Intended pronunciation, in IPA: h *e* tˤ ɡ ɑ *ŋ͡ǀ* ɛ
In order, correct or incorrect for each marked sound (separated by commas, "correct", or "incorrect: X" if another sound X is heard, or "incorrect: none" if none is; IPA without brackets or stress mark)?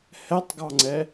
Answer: incorrect: ɛ, correct